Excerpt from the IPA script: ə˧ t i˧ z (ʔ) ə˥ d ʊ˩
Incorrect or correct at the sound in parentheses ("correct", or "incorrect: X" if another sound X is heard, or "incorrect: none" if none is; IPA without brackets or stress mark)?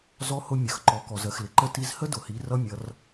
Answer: incorrect: h